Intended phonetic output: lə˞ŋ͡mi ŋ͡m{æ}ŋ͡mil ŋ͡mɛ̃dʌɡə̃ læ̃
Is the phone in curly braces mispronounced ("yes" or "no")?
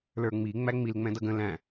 no